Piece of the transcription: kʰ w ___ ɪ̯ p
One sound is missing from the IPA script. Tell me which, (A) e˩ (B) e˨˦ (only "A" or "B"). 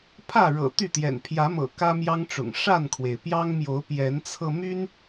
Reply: A